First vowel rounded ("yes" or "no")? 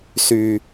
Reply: yes